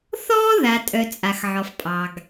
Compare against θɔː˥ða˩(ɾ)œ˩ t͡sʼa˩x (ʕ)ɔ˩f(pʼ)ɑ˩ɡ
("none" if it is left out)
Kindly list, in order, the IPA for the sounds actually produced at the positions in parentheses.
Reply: tʼ, ʕ, pʼ

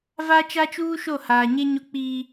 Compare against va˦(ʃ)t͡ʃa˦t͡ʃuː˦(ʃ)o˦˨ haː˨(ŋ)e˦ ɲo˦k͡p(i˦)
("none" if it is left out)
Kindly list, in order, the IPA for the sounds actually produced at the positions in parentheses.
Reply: none, ʃ, ɲ, iː˦

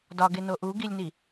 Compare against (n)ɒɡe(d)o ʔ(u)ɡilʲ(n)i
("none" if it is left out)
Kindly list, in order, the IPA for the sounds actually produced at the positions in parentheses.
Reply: d, n, u, n

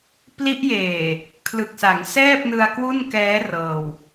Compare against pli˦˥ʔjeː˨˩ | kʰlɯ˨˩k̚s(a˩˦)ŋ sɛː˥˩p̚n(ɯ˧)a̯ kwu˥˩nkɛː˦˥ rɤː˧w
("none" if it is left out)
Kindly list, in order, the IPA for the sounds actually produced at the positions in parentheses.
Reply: a˩˦, ɯ˧

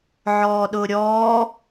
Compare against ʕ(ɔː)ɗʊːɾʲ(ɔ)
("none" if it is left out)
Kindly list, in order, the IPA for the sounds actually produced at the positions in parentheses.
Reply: ɔː, ɔː

